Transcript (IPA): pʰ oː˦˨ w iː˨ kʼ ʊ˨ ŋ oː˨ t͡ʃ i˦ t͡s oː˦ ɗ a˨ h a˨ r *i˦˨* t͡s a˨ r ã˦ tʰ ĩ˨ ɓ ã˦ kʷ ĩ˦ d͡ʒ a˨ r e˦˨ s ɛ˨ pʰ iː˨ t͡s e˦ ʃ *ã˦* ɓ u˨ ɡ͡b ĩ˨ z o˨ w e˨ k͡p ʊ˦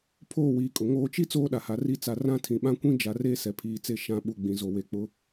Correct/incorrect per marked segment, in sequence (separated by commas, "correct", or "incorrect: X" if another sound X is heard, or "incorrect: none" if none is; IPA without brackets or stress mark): correct, correct